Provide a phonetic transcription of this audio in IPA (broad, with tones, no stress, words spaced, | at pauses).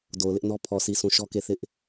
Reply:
do˨ʊ̯lɪ˦ʔnɔ˦ pʰɔ˨si˨sũ˨ ʃɔ˦ke˦˨ θɪ˦ʔ